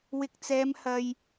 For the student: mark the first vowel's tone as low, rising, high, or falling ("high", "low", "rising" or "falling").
low